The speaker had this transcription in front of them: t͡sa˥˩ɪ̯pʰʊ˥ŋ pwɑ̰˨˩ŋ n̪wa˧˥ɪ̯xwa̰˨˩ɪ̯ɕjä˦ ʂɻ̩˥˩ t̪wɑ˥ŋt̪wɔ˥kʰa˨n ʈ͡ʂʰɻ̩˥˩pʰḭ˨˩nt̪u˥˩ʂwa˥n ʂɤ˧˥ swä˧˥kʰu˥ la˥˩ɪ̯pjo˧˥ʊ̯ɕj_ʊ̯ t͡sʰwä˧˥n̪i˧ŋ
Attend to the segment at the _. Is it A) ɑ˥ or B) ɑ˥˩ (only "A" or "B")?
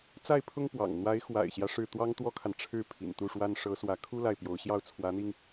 B